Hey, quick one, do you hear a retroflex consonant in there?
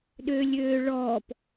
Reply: yes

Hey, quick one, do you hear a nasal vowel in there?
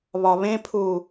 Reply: yes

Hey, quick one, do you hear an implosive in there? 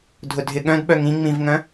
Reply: yes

